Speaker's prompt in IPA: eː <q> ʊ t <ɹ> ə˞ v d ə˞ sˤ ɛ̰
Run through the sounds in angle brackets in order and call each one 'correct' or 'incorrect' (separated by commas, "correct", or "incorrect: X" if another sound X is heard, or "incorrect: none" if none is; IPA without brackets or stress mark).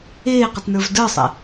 correct, incorrect: n